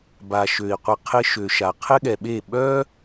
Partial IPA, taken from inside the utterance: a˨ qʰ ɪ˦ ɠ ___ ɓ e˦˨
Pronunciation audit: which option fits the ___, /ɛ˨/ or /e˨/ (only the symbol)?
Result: ɛ˨